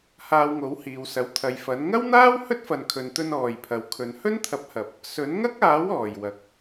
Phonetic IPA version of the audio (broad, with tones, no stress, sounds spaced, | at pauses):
h aː˧ w ŋ o˨˥ w h iː˨ w s ɐ˨˥ w t̪ʰ ɐ˨ j f ɐ˨˥ n ŋ ɐ˥ w n̪ aː˥ w h ɵ˥ t̚ f ɐ˨ n kʰ ɵ˨ n t̪ ɵ˧ n ɔː˨˩ j pʰ ɐ˨ w kʰ ɵ˨˧ n h ɵ˥ n t̪ʰ ɐ˨˥ p̚ h ɐ˨ p̚ | s ɵ˨˥ n ŋ ɐ˥ k̚ aː˨˥ w ɔː˨˩ j w ɐ˨ k̚